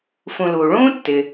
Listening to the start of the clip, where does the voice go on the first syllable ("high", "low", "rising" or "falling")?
low